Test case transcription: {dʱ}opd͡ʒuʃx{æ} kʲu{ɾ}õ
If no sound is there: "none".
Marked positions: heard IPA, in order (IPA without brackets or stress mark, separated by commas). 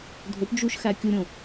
dʱ, æ, ɾʲ